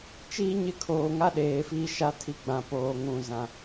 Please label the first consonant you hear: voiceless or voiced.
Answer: voiceless